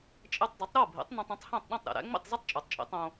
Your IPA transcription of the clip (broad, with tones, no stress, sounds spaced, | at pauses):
t͡ʃʼ e˧ tˤ dˤ e˩˥ tˤ ɾ o˥˩ bʱ ḛ˩˥ tˤ n õ˧ tˤ ĩ˩˥ tˤ h æ̃˥˩ tˤ ɗ õ˥˩ tˤ ɾ ḛ˩ ɾ æ̰˥ ŋ͡m ḭ˥˩ tˤ z e˥ tˤ t͡ʃʼ o˩ tˤ t͡ʃʼ ḭ˩˥ tˤ õ˧